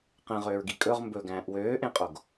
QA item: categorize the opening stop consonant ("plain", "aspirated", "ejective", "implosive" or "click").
plain